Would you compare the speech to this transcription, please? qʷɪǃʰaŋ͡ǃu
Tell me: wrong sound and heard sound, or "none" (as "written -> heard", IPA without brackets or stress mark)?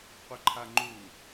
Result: none